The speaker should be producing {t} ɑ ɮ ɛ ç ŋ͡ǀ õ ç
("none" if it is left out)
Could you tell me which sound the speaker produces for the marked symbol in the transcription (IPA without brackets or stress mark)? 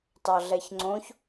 t